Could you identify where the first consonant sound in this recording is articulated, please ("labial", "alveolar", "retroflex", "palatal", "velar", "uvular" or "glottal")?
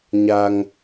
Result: palatal